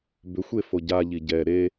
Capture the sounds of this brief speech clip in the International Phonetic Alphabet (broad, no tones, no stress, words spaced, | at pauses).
bʏxʷe foɟaʎi ɟɛ ɾe